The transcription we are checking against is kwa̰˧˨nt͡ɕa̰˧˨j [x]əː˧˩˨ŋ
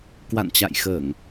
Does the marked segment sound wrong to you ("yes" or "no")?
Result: no